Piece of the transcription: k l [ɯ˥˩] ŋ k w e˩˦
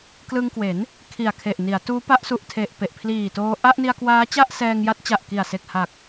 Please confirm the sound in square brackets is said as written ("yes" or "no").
no